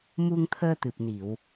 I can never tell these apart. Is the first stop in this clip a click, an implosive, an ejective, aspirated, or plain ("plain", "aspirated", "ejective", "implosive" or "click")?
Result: aspirated